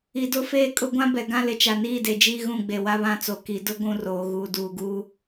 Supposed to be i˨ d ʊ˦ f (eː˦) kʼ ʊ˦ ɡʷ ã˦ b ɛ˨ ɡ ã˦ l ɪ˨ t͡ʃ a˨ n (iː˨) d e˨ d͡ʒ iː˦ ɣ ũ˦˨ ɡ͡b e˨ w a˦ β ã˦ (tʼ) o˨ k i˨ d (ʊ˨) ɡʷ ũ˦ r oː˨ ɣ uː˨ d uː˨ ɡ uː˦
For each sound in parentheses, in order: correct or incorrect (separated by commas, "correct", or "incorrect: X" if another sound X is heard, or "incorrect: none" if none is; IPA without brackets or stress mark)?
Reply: correct, incorrect: iː˦˨, incorrect: t͡s, incorrect: ʊ˦